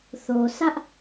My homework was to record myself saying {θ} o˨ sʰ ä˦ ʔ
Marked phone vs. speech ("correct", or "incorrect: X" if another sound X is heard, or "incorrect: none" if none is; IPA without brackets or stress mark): correct